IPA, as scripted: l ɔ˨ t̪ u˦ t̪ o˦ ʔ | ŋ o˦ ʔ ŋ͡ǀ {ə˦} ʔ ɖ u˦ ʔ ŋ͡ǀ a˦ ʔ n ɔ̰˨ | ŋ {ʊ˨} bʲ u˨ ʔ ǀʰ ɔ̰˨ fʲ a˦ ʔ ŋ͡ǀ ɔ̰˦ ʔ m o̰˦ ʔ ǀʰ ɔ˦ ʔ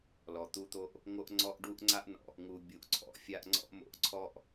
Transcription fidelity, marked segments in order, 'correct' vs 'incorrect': incorrect, incorrect

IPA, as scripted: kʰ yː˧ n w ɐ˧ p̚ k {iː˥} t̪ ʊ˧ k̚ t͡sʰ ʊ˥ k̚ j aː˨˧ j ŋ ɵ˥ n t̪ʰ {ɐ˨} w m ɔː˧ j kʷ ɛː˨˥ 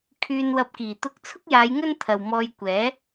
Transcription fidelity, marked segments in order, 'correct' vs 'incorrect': incorrect, correct

